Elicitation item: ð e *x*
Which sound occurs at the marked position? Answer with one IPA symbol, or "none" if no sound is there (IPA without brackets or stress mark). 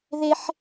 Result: ħ